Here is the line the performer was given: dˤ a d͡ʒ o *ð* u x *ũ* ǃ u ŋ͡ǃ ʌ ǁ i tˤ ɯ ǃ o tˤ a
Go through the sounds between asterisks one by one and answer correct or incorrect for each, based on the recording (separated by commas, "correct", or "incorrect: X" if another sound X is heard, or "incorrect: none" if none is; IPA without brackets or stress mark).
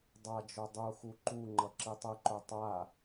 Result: incorrect: dˤ, incorrect: u